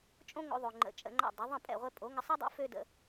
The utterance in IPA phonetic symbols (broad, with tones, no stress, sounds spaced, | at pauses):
t͡ʃʼ õ˥ ŋ o̰˧ ðˤ o˩ ŋ͡ǃ ə̰˩˥ t͡ʃʼ ə̰˧ ŋ͡ǃ a̰˥˩ dˤ o˩˥ ðˤ ə̃˥˩ pʼ ɛ̰˥˩ ʁʷ ɛ˧ pʼ o˩˥ ŋ ə˧ sˤ ɛ˥ dˤ o̰˥ f ø˥ d ə̰˧